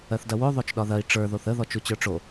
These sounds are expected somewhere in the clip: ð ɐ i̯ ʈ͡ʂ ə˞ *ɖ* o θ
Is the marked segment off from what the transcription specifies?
yes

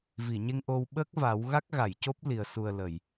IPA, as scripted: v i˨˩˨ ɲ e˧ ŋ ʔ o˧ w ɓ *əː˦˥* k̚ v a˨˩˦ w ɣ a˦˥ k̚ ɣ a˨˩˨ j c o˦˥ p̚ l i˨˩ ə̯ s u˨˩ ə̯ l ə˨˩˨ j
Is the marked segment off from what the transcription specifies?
no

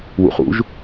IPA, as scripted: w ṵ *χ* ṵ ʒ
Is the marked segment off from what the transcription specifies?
no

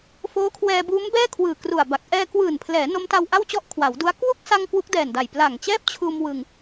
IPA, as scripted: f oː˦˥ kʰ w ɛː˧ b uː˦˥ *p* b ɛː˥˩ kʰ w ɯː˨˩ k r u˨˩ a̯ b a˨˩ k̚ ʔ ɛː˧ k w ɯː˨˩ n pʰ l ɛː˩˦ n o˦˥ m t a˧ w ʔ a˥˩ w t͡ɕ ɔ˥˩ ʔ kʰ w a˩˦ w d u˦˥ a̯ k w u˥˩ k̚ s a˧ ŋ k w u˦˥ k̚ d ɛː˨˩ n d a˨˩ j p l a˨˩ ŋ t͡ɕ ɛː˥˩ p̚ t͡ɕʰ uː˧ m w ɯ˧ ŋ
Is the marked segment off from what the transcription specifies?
yes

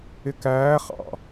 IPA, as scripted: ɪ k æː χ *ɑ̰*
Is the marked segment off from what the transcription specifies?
no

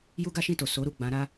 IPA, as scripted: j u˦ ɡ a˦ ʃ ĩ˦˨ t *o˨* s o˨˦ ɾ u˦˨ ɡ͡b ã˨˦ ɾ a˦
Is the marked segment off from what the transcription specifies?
no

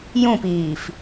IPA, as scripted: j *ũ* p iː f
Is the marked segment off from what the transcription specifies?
no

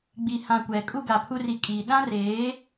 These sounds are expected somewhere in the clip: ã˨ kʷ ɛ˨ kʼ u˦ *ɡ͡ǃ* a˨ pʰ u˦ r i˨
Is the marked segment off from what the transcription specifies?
yes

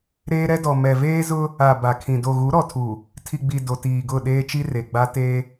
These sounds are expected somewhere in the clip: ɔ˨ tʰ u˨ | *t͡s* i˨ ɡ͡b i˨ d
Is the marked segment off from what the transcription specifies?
yes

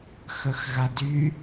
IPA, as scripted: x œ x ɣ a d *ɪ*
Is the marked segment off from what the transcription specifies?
yes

